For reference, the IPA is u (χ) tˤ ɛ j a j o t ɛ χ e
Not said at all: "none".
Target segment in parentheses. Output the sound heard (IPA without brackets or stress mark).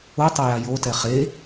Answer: none